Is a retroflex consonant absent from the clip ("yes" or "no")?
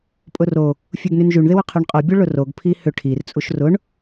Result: no